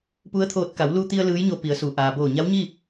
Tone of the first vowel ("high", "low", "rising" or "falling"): rising